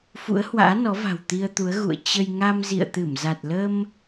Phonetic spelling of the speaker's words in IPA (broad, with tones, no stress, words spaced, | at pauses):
fṵ˧˥ə̯hwa̰ː˧˥nɔ˨˦va̤˨˩w t̪i˧ə̯t̪u˨˦ə̯ ɣṵ˧˨ə̯ t͡ɕə˧j ŋa˧mzḭ˧˨ə̯t̪ɨ˧˩m za˨˩t̚lə˧m